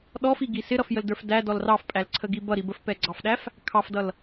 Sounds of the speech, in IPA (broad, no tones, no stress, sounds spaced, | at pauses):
ɗ ɔ f i ɡ i s ɪ ɾ ʌ f j ə l d ə˞ f d æ d ɔ l r ɑ f pʼ æ l ǀʰ ə ɡ i b ʌ ɾ i b ə f p ɛ ɡ͡ǀ ɑ f ɗ æ f | kʰ ɑ f d ʌ l